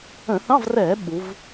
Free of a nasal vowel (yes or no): no